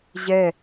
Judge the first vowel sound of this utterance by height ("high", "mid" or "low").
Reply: mid